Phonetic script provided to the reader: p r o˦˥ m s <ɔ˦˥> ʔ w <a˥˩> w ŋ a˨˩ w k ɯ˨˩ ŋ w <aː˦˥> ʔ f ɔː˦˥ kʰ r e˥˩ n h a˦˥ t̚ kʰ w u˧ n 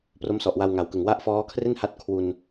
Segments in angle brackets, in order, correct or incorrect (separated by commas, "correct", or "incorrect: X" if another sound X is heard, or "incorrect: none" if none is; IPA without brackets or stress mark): incorrect: ɔ˨˩, incorrect: a˧, incorrect: a˦˥